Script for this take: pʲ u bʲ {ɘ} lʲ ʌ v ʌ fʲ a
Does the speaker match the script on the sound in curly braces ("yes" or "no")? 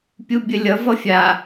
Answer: yes